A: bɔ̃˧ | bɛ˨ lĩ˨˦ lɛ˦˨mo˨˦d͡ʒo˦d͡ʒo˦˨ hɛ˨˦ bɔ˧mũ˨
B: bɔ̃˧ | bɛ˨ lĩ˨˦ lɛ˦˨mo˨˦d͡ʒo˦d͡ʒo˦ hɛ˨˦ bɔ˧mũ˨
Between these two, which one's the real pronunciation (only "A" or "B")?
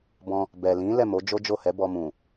A